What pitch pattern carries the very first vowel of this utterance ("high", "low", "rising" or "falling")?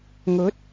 rising